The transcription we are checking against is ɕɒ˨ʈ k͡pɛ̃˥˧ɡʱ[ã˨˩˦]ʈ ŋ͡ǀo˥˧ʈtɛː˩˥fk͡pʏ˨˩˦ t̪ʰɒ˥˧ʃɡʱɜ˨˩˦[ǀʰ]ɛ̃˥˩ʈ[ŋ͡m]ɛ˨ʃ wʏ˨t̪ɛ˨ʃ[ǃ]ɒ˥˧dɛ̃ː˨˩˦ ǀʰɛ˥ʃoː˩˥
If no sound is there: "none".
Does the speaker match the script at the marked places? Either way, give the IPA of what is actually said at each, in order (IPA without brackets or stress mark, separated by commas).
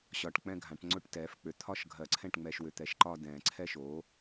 ã˨˩˦, ǀʰ, ŋ͡m, ǃ